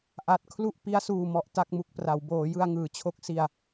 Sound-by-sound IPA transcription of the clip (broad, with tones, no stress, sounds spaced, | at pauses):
ʔ a˨˩ t̚ kʰ l u˥˩ ʔ p i˦˥ a̯ s uː˨˩ m ɔ˨˩ ʔ t a˥˩ k̚ m u˦˥ k̚ p r a˩˦ w b oː˩˦ j ɯ˧ a̯ ŋ ɯː˩˦ t͡ɕʰ o˦˥ k̚ s i˧ a̯